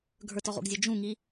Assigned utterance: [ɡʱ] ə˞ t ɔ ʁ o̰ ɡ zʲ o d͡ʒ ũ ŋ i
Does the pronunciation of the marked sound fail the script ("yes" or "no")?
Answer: no